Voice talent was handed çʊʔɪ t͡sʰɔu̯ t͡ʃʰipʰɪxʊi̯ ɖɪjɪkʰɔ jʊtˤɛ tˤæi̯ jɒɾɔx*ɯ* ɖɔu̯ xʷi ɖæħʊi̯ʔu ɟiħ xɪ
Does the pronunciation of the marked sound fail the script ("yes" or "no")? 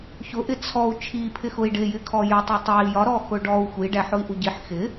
yes